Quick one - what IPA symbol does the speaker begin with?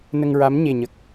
n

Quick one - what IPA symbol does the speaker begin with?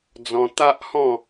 d͡z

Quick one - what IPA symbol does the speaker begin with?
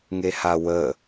ŋ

